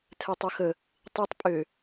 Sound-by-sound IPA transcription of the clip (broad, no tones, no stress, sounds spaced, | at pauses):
tʰ ɛ tˤ ɵ x ə | tˤ i tˤ pʼ ø